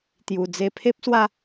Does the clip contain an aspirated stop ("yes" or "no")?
yes